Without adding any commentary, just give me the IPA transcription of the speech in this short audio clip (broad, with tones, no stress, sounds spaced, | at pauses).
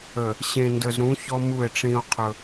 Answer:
ə˨ | ɕ ẽ˨ n d ə˨ z ɾ ũ˨˦ ç ɔ˦ m u˦˨ e̯ ʈ͡ʂ ĩ˦ o̯ qʰ ɵ˦